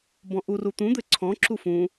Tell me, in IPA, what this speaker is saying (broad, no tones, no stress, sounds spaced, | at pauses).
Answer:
b ɔ̃ ʔ u r u t̪ ũ d̪ ɘ ǀʰ ɔ̃ ǁ u f ũ